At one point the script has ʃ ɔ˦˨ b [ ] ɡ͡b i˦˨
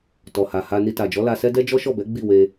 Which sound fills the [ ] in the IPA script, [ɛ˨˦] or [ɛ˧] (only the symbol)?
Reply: ɛ˨˦